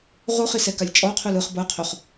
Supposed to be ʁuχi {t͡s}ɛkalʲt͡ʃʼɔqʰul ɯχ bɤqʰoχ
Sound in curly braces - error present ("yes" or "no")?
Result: yes